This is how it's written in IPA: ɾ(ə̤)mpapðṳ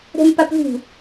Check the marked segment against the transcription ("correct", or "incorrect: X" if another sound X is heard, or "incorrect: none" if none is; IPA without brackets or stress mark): incorrect: ɛ̤